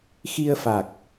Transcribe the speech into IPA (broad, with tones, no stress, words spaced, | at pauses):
xi˧ə̯fa˨˩k̚